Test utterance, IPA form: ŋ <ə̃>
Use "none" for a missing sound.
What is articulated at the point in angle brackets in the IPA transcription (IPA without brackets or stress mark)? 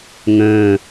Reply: ə̃ː